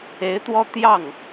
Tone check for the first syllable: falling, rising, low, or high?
rising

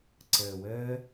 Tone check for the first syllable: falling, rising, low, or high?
low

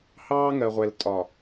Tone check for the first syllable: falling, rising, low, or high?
high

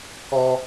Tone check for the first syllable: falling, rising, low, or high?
high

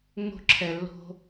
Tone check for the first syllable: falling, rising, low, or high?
high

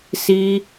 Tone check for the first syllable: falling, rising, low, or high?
high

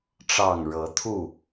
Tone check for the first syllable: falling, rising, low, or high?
low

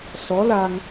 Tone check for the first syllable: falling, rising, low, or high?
rising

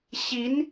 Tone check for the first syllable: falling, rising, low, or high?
rising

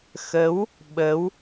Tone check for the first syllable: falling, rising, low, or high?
rising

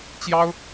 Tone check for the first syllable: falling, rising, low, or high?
high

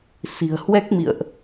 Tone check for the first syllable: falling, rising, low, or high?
low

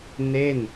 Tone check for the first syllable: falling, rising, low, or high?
falling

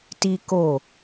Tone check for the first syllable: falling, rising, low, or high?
high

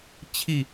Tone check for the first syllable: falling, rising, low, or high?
falling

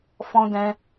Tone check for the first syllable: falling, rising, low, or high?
high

